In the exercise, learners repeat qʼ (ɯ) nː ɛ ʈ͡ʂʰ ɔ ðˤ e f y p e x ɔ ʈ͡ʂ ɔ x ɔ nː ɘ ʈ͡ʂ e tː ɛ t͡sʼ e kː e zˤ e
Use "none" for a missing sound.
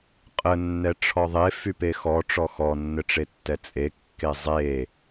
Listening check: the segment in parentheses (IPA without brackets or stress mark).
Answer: ə